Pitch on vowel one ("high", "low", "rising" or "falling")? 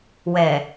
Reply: low